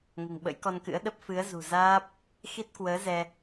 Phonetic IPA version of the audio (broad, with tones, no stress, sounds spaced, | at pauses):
ŋ o̤˨˩ ŋ ɓ ə̰˧˥ j k ɔ˧ n k ɨ̰˧˥ ə̯ ɗ ə˦˥ p̚ f ɨ˨˦ ə̯ z ṳ˨˩ z aː˦˥ p̚ | x i˦˥ t̚ k w əː˨˦ z ɛ˧